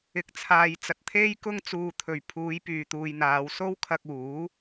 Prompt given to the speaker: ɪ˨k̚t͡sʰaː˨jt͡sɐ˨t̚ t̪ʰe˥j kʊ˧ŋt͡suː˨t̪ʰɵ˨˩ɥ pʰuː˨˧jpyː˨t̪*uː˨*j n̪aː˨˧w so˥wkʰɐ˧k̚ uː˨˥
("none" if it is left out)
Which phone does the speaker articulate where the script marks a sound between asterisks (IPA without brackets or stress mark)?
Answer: uː˨